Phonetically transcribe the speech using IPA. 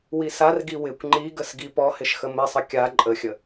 wisarɡi wɪkʷ ŋ͡ǃiɡəs ɡipɔhɪʃ xəmɪsˤə kʲa ǃʼəxʲə

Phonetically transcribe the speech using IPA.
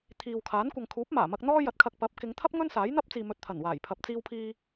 t̪ʰiː˨wkʰaː˨˥n kʷɐ˨ŋkʰuː˨˥p̚maː˨˩mɐ˧k̚ n̪ɔː˥jɐ˨t̚kʰɐ˧k̚ pɐ˨˥p̚ kɪ˨˧ŋt̪ʰɐ˥p̚ ŋɵ˥n saː˨˥jn̪ɐ˥p̚t͡siː˨ mɵ˨t̚t̪ʰɐ˨˩nwaː˨˩j pʰɐ˨p̚t͡siː˧wpʰiː˧

